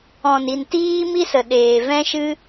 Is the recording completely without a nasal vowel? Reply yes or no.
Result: no